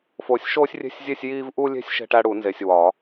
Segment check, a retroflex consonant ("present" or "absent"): present